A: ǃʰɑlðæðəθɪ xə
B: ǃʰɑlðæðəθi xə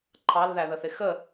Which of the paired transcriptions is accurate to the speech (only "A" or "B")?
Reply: A